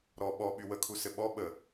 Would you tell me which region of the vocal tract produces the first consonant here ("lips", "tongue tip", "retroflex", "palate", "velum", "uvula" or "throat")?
tongue tip